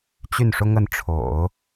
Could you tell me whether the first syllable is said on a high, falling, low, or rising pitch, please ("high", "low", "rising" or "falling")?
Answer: falling